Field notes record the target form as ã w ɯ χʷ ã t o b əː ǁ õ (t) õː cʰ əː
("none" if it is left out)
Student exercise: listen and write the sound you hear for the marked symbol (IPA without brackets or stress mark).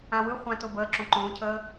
ǃ